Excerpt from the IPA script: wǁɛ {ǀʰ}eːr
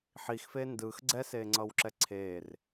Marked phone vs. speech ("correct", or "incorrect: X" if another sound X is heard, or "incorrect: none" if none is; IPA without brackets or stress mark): correct